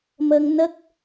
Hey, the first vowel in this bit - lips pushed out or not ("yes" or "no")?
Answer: no